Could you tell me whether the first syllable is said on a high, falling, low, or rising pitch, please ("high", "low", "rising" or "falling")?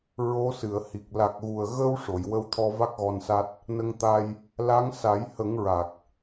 rising